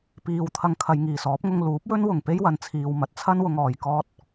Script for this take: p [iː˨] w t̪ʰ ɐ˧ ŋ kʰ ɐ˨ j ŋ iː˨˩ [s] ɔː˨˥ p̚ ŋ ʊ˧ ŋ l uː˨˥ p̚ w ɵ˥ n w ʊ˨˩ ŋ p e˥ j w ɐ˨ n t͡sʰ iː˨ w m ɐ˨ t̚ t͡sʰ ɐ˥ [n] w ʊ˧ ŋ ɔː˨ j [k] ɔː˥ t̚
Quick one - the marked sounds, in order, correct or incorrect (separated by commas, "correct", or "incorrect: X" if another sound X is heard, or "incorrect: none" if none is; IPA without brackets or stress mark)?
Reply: correct, correct, correct, correct